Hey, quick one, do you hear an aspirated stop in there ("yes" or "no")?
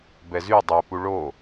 no